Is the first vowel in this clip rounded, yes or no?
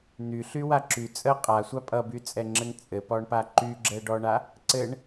yes